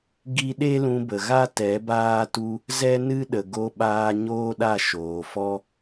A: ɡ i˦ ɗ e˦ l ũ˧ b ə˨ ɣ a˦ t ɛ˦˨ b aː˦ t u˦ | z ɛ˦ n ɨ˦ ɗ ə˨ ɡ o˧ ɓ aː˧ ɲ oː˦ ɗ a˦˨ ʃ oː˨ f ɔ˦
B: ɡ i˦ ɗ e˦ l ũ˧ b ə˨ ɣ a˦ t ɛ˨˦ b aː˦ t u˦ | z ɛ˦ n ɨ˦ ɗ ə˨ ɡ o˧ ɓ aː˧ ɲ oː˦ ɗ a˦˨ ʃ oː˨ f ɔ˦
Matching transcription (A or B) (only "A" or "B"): B